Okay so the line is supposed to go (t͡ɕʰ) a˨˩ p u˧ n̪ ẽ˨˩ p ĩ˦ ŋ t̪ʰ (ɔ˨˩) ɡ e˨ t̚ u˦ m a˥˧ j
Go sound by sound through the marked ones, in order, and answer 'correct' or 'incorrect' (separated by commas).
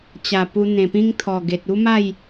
incorrect, correct